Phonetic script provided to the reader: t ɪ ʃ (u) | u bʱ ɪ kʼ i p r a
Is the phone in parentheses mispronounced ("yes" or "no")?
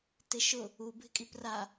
yes